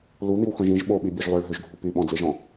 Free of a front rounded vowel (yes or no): no